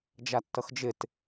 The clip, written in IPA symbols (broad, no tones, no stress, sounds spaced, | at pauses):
d͡ʒ a tː ʌ x d͡ʒ ɪ t